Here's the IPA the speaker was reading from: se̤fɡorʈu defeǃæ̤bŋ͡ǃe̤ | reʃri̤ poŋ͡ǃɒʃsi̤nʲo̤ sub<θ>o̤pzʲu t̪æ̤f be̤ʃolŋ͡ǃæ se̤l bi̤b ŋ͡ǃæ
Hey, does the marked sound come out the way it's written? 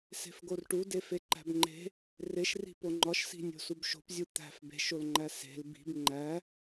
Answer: no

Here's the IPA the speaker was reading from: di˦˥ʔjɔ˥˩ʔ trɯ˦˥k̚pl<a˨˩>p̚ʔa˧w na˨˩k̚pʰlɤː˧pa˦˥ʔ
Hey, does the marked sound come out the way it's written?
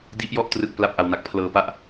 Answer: no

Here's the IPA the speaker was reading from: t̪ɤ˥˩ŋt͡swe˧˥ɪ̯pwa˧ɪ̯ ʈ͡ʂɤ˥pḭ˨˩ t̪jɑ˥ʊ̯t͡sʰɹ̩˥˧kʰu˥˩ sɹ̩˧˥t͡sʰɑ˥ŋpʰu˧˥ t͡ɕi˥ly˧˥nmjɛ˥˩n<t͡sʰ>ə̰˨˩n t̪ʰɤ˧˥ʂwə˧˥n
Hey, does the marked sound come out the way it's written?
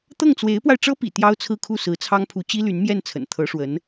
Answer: yes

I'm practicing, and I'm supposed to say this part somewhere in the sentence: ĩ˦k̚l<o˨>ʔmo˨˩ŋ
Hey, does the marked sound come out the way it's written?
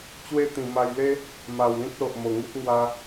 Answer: yes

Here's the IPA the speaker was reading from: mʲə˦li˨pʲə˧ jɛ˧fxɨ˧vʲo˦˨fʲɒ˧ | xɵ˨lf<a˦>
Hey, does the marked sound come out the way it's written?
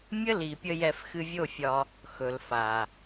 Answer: no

